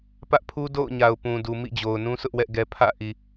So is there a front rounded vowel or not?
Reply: no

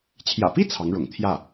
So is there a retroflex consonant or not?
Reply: yes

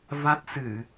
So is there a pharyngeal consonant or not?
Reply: no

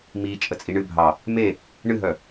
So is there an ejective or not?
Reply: yes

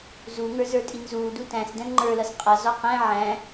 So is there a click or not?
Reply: yes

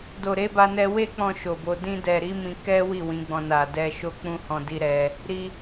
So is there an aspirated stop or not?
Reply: no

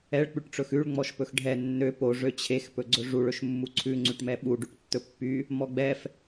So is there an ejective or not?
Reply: no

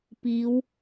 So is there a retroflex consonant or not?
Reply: no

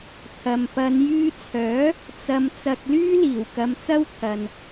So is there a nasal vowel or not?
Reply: no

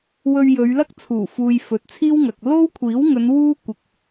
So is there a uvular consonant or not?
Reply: no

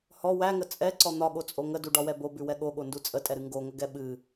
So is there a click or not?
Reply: yes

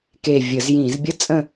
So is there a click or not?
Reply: no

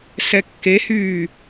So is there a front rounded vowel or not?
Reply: yes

